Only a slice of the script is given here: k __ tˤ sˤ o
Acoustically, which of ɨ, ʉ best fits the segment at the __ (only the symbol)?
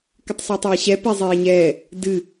ɨ